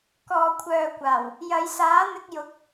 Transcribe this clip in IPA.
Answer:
k ɔː˨ kʷʰ œː˨ kʷ aː˨˩ w | j ɐ˨˧ j s aː˨˥ n̪ ɪ˧ k̚ j ʊ˨˥ k̚

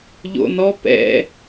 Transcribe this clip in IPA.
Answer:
ʎ o̰ n ɔ p ɛ̰

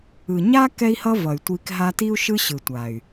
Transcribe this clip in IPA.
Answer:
ɯ˨ ɲ a˦ k ɛ˦ i̯ h ʌ˦ v ʌ˨ y̯ tʷ i˧ k ɦ a˧ t i˦ u̯ ʃ ɯ˦ ɕ ɯ˨ tʷ a˨ y̯

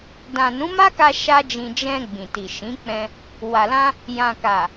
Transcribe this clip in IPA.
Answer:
d ã˨ n ũ˨˦ m a˦ k a˧ ʃ a˦ d͡ʒ ĩ˧ d͡ʒ ɛ̃˧ ɡ͡b ĩ˨ t i˨ ʃ ĩ˨˦ k͡p ɛ̃˧ | w a˨ l ã˧ | j ã˨ k a˨

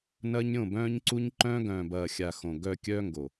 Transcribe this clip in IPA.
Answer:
n ɐː˦ ɲ ɾʲ õ˦˨ b œ̃ː˦ ɲ ǀ u˦ ɲ ǃ œ̃ː˦ ɡ œ̃ː˨ b ɐː˨ xʲ a˨ x õ˨ ɡ œ˨ kʲ œː˦ ŋ ɡ o˨

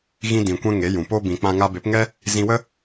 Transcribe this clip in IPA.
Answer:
ɣ ĩ˧ d ĩ˨ kʷ ɛ̃˧ ŋ e˨˦ j ũ˨ p o˦ b ĩ˧ k͡p ã˧ ŋ a˧ b e˨˦ p ŋ ɛ˦ | z ĩ˧ w ə˦

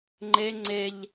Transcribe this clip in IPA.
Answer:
ŋ͡ǃ e ŋ͡ǀ e ʎ

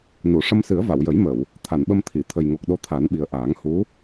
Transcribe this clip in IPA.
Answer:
n u˨˩˨ ʂ ə˧ m s ɨ˨˩˦ ə̯ v a˨˩˨ w j ə˨˩˦ j m ə˨˩˨ w | t̪ʰ a˨˩˨ n ɓ ə˧ m t̪ʰ i˨˩˨ t̪ʰ ə˨˩ j ŋ o˨˩ k̚ ɗ o˧ t̪ʰ a˨˩˦ n ɓ i˨˩ ə̯ ʔ aː˨˩˦ ŋ h u˧˥

